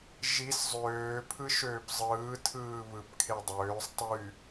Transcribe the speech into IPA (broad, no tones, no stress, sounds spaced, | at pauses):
ʒ i s zˤ øː pʰ ɯ ʃ øː p zˤ ɯː tʰ ɯː β ɯ p kʰ e dˤ øː sˤ tˤ y